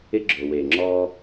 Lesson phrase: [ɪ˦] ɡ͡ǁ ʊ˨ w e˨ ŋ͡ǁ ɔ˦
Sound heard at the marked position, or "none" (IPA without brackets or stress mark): ɪ˦